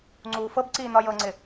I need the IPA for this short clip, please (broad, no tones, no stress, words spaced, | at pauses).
ŋ͡ǀuːfɤbǀiː nɒjɤŋ͡ǀɪ